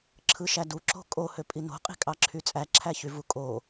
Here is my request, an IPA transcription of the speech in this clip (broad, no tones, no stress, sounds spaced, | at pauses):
ǁʰ ɯ ʃ æ d u ǁ o̤ kʼ o h ø pʼ i n o̤ qʼ i̤ kʼ ɑ ǁʰ y t͡sʼ æ ǁʰ æ ç y v u kʼ o